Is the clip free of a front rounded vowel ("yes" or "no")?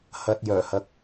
no